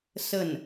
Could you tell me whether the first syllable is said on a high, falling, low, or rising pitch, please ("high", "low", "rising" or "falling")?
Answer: falling